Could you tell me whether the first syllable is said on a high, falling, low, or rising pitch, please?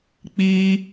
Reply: high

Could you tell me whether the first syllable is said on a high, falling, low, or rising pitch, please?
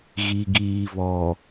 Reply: low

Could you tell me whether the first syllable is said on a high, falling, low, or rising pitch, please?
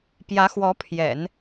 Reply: rising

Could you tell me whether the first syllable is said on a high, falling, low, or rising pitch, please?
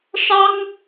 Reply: high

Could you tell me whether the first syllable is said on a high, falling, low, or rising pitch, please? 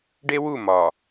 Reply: high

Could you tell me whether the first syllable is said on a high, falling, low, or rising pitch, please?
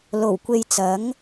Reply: low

